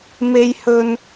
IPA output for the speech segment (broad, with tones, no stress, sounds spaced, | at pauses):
m e˥ j h ɵ˥ n